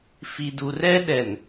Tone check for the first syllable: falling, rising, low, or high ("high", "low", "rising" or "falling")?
low